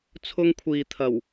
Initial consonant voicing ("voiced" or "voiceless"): voiceless